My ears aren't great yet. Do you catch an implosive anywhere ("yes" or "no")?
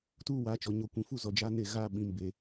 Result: yes